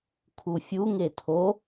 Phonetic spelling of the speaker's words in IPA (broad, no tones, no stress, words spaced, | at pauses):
kʰufʲu ŋetʰo